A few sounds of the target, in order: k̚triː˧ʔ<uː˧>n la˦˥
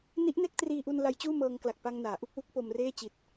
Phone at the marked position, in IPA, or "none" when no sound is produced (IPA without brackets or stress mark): u˧